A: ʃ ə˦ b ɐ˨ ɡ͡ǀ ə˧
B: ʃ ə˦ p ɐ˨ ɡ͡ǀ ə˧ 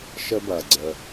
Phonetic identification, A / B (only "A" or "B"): A